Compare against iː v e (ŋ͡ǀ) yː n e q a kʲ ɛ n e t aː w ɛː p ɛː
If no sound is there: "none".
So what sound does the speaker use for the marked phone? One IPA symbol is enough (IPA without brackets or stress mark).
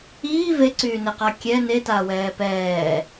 ǀ